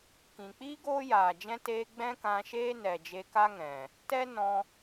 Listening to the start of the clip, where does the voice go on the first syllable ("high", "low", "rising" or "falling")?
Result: low